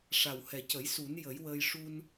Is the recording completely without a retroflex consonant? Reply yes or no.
no